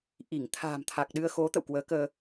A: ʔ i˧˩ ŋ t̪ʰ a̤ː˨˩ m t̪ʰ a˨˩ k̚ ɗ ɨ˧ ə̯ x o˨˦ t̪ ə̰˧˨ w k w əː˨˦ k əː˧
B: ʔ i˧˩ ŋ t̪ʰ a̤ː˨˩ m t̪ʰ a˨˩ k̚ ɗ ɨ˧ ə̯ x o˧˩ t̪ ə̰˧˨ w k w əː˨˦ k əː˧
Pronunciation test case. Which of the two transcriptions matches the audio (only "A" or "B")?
A